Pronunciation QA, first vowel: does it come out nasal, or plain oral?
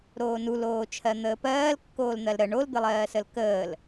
oral